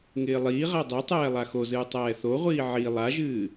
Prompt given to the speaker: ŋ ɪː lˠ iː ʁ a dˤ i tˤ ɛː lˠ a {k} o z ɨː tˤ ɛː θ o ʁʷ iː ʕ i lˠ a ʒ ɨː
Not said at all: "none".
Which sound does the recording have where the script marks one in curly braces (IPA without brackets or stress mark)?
x